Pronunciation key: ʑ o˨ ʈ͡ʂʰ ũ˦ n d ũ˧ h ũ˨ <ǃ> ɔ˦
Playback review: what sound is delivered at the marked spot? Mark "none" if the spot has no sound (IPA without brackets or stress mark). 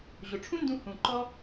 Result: ǃ